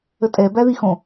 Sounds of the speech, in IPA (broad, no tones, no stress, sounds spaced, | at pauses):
ə tʼ ɛ b æ ð i x õ